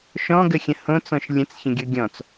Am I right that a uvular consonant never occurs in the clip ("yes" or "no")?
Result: yes